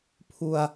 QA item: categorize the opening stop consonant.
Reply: aspirated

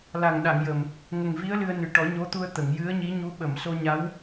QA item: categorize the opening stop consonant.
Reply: implosive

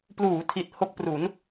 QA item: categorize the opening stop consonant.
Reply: plain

